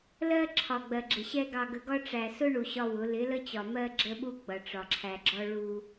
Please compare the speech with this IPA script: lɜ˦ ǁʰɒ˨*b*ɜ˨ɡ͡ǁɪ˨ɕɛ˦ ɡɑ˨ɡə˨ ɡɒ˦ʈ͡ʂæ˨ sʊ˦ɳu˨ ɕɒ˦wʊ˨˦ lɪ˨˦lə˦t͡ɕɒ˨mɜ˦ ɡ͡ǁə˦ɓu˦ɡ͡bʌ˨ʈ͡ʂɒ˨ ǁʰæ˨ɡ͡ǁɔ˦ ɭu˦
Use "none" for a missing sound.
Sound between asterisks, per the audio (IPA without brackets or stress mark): ɡ͡b